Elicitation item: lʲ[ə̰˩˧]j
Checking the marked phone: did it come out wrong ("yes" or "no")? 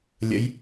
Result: no